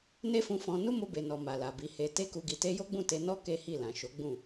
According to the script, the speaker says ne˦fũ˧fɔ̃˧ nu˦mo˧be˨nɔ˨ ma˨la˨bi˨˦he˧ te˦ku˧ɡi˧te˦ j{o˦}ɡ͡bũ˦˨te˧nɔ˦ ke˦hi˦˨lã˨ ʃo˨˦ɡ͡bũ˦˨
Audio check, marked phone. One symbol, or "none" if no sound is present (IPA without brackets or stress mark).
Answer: o˦